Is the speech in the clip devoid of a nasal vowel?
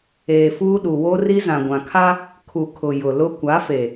no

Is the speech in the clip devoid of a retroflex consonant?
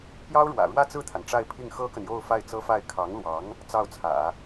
no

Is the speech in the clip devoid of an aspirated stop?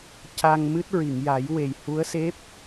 yes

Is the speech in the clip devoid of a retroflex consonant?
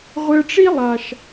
no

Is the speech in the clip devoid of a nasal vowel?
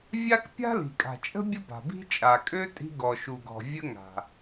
yes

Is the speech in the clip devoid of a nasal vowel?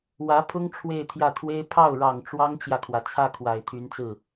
yes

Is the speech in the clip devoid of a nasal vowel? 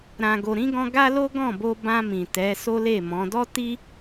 no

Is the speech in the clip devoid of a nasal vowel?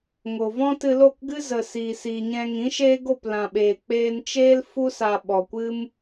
no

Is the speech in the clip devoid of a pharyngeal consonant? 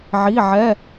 no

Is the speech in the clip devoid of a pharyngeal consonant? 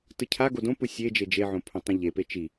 no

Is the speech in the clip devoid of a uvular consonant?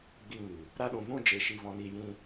yes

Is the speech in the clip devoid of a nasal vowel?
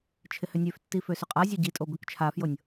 yes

